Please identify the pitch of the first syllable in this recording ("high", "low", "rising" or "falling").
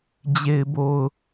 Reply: low